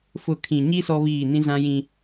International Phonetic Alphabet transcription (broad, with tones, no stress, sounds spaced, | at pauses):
f ʊ˦˨ kʰ ĩ˨ ɲ i˦ s ɔ˦ β iː˦˨ n ĩ˦ z ã˦ j ĩ˦